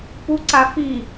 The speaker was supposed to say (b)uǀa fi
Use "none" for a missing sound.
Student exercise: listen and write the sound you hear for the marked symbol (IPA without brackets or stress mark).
p